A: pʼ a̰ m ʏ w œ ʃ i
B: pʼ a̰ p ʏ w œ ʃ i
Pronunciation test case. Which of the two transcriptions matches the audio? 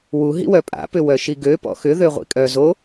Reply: B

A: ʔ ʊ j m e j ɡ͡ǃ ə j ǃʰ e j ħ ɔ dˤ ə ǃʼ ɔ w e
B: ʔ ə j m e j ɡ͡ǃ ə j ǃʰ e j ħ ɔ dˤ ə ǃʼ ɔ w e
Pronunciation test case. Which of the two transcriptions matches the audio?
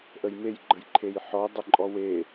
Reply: B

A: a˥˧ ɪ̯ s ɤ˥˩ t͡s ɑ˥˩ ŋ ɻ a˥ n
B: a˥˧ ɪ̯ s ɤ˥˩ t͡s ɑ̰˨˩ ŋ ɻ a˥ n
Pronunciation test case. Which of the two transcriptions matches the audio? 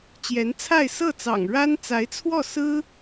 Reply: B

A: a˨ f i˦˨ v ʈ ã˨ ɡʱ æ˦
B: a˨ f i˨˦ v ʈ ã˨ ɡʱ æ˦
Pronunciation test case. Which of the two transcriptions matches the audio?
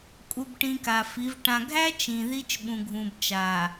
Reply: B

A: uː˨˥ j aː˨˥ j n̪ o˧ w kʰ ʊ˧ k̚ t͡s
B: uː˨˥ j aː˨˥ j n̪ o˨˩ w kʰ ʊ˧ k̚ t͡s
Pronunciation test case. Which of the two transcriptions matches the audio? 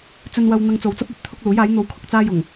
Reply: A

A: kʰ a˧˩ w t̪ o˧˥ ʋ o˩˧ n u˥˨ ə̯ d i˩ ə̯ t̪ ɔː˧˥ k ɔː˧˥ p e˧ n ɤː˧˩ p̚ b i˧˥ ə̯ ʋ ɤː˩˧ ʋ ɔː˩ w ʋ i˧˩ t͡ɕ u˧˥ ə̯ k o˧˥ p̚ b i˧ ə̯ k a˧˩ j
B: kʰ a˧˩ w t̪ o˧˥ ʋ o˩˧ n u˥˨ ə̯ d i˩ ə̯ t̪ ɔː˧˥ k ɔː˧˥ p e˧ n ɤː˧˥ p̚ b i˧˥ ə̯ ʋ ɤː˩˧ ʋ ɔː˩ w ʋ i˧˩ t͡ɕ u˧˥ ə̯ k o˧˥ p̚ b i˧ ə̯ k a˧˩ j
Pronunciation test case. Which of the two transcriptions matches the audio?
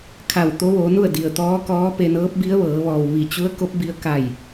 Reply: B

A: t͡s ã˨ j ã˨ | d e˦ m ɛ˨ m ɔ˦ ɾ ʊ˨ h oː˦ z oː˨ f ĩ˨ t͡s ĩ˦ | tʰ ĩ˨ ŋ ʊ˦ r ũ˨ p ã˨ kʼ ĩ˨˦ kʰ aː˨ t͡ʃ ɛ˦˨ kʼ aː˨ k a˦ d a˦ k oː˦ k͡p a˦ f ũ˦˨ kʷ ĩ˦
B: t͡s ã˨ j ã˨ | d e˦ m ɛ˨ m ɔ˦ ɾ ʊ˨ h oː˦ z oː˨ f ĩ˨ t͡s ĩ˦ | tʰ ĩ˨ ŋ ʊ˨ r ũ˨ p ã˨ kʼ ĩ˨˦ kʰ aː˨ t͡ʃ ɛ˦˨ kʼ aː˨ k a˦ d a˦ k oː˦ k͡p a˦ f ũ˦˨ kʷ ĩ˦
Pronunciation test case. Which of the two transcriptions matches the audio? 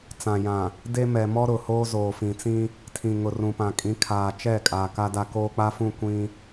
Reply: B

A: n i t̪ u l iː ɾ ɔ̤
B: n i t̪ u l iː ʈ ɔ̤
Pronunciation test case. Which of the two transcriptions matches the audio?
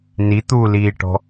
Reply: B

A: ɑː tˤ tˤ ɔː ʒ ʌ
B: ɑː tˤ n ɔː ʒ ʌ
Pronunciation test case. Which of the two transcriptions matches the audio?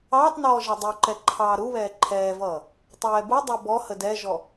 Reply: B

